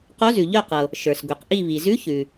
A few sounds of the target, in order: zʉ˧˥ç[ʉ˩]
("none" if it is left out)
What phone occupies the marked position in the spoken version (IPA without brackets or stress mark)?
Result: ʉ˩